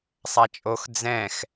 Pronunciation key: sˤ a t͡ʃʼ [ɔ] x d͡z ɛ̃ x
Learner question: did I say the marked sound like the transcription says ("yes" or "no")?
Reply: no